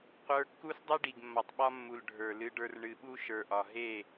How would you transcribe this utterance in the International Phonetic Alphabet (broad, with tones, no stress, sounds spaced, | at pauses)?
qʷ ə˞˦ kː u˦ s dˤ ɨ˦ ɖ i˨ ɡ mː ɒ˨ tˤ ɓ ɒ˦ mː u˨ l ɖʱ ə˞˨ l ɨ˦ ɖ ə˞˦ r ɳ ɨ˨ ɓ u˦ ʃ ə˞˨ ʔ ɒ˨ ɦ e˦˨